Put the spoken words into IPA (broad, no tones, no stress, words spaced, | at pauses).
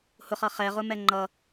hʊχʌ χɛʁʊmɛ ŋ͡ǃʌ